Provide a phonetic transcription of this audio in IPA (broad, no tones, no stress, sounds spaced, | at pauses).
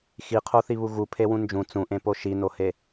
x i qʰ o θ i β u ɣ u pʰ e w ũ n d͡ʒ ũ t͡s ũ ʔ ẽ p o ʃ i n o h e